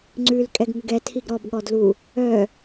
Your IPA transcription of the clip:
ŋ͡ǀ ʉ l kʼ ɛ ɡ ŋ ʉ ɡ ɛ tʰ i ɡ ɾ ɔ b ɠ ɔ d l u | œ

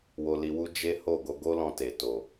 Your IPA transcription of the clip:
w o˧ l i˧ w u˦ d͡ʒ e˦ h o˦˨ ɡ o˧ ɡ o˦ l ɔ̃˧ t e˨ t o˨

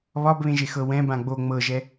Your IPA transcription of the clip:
β ɒ b β ẽ ʒ e x ɤ w ɛ̃ b ã ɡ͡b o ŋ͡m ɤ ʒ ɛ

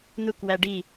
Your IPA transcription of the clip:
n̪ u k w æ ɖ i

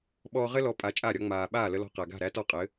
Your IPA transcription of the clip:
ɓ ɔː˧ ʁ ɘ˥ l ɔ˩˥ pʼ a˩˥ t͡ʃʼ a˥˩ ɾʲ ɒ˩˥ ŋ͡m aː˩ ɓ aː˥˩ l ə˧ l ɔ̤˧ q æ˩ ɡ a̤˥˩ ɾ æ˥ t ɔ˥˩ qʼ ɘ˩˥

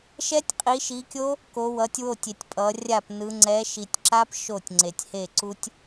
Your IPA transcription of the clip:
ʃ ɛ˦˥ tʲ qʼ i˨˦ ʃ i˨˦ kʲ o˦˥ | k o˨˦ w ʌ˨˦ tʲ w o˥˩ tʲ e˨ tʲ pʼ ʌ˨˦ rʲ a˥˩ p n ɯ˨˦ ŋ͡ǀ ɛ˨˦ ʃ i˨ tʲ ǁ a˦˥ p ʃ o˥˩ tʲ ŋ͡ǀ e˨ tʲ h e˥˩ ǀ u˦˥ tʲ

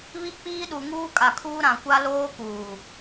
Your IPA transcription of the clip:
β i˦ k͡p iː˦ ɗ u˨ ŋ uː˦ kʼ a˨ kʰ uː˦ ɾ ã˨ kʷ a˦ l oː˦ k uː˨

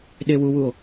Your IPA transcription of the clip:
ɗ e w u w u o̯

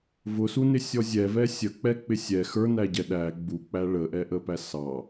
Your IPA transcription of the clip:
v ʊ s u n ɪ sʲ ɔ zʲ ɛ v ɛ sʲ ə k͡p ɛ k͡p ɪ sʲ ɛ x ə˞ n æ ɟ ɛ ɗ æ ɡ͡b u k͡p æ ɭ ə ʔ ɛ ʔ ə p æ s ɑ

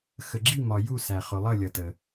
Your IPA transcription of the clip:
x ə˩ ɡ͡ǁ i˥˩ m ɒ˩ j u˥˩ s æ˩ χ ʊ˩ lˠ ʌ˥˩ lʲ ʌ˩ t ə˩

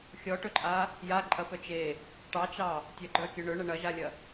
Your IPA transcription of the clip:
xʲ ɔ ʈ ɵ ǃʼ a | j a ǃʼ ɐ p œ t͡ʃ e | ʈ ɑ t͡ʃ ɑ | tʲ ɐ ɡ͡ǃ œ kʲ ɵ ɳ ɵ ɳ ɐ ɳ ɐ ʒ a lʲ ɐ

